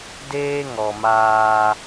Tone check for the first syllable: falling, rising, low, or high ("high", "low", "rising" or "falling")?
high